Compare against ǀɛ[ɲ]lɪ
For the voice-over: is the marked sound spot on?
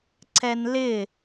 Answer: no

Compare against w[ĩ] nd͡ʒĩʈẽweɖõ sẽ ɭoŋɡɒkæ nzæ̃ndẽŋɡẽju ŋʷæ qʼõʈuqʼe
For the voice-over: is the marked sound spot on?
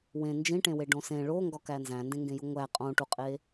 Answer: no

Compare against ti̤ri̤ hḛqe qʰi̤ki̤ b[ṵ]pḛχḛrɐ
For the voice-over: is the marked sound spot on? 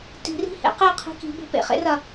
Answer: no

